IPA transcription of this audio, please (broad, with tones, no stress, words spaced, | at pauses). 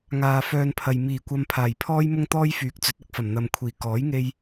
ŋaː˨ fœː˧npʰɐ˨j miː˨˩kʷɐ˧mpʰaː˨˩j pʰɔː˥jmʊ˥ŋt̪ɔː˥j fyː˨˥k̚t͡sɵ˨˥t̚ɐ˧k̚fɐ˨˩m n̪ɐ˨mkʷʰiː˨˩ kɔː˨˥jŋe˧j